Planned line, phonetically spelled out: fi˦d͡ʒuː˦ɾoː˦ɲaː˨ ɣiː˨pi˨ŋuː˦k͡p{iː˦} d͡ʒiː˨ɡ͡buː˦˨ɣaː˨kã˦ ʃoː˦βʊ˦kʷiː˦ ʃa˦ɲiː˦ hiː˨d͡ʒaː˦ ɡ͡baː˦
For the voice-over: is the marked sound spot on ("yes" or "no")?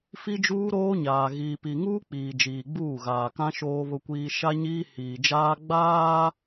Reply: no